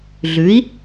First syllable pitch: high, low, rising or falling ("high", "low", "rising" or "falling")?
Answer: rising